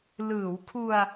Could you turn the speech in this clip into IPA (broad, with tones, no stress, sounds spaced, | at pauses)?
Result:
l ɯː˩˦ w kʰ u˧ a̯